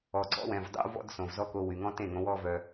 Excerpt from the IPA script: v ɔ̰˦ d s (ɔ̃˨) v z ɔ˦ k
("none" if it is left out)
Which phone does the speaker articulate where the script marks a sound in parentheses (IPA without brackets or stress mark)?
õ˨